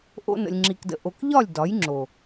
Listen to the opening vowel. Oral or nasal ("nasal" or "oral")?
oral